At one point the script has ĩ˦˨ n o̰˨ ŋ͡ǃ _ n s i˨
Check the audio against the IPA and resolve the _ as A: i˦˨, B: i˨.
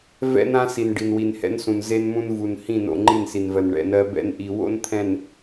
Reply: A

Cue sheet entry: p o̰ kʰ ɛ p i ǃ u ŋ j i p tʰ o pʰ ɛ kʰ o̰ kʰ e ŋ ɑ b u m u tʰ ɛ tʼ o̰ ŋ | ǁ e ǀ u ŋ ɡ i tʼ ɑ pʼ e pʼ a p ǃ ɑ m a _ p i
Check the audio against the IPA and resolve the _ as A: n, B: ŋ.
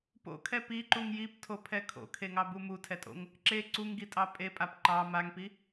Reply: B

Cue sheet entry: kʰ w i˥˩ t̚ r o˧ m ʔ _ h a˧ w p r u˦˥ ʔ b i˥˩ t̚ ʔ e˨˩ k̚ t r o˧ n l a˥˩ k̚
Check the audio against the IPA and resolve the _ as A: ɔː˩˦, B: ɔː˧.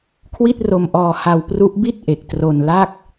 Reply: B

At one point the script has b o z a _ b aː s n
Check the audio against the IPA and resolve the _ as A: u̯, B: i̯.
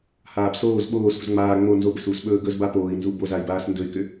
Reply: B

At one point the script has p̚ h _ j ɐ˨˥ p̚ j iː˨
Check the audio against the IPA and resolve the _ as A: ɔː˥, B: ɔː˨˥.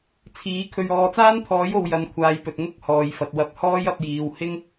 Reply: A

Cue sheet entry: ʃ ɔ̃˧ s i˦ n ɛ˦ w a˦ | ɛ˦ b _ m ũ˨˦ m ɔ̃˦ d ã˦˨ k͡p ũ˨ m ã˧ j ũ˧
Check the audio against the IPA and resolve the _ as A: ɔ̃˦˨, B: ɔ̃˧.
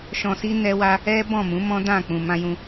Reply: A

